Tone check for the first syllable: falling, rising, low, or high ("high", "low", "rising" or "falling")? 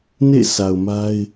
falling